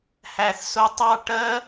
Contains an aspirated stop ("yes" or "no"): no